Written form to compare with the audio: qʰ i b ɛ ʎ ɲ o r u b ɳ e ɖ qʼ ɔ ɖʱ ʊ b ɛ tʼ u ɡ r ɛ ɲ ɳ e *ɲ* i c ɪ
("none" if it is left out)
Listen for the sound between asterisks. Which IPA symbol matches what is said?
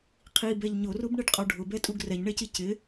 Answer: c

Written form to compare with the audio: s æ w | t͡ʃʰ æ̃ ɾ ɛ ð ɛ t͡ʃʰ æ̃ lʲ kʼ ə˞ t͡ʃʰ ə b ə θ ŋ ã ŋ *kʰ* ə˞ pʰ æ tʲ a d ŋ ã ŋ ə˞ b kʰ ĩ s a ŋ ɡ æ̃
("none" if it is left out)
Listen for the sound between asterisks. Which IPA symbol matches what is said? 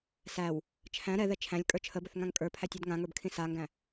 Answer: kʼ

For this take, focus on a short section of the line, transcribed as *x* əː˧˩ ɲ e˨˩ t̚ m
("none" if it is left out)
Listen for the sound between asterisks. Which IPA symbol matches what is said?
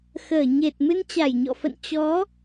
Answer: x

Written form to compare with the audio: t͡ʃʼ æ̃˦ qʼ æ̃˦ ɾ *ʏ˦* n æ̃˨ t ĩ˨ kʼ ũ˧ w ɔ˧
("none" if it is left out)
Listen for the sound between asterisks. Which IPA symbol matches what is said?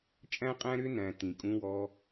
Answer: ʏ˦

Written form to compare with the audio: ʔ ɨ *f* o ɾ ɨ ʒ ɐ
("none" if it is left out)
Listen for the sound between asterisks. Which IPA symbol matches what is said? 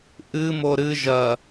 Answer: m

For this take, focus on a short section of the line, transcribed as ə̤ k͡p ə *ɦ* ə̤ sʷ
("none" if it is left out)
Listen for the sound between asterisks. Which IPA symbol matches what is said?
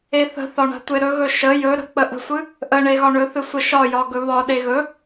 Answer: ʔ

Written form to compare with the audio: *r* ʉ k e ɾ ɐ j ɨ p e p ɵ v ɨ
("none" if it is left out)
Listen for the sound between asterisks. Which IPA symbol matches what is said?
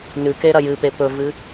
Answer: n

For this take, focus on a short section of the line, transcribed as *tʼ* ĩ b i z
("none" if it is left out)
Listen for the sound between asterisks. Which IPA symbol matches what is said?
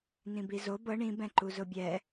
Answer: n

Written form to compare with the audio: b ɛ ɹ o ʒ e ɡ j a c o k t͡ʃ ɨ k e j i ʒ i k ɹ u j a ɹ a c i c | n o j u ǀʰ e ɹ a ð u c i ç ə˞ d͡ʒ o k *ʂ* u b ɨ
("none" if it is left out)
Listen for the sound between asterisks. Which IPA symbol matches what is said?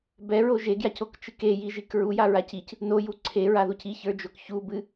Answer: ç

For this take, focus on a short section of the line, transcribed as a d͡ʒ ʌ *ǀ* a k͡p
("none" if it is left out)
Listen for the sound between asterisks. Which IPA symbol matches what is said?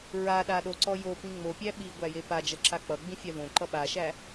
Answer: ǁ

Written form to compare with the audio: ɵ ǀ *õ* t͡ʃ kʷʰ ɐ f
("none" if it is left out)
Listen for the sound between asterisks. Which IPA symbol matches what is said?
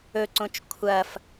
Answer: õ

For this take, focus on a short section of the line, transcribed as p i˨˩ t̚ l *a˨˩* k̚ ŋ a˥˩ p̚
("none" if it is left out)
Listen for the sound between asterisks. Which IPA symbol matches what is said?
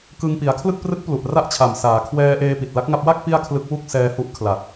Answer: a˦˥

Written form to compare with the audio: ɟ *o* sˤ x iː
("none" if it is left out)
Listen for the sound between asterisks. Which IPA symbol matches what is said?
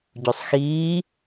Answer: o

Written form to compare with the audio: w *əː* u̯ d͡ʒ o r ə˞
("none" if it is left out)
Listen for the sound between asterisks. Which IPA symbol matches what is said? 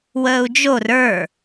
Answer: əː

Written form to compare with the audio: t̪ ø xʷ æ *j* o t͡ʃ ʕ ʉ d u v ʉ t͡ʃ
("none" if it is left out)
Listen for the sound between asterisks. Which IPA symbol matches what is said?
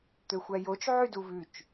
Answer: j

